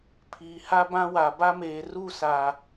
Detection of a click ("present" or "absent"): absent